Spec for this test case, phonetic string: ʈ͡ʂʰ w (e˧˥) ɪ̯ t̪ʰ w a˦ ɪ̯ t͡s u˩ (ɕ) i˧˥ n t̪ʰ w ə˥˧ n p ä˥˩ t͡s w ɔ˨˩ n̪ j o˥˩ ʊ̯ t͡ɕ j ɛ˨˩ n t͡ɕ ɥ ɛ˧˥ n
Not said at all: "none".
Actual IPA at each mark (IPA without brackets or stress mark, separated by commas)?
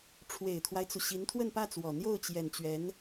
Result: e˨˩, ɕ